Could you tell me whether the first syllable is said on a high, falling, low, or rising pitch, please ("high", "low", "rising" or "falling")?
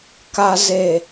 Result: low